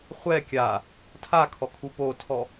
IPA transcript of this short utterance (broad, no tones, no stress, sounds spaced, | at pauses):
χʷ ɛ kʲ a | tʰ a kʰ ɔ kʰ u p o tʰ ɔ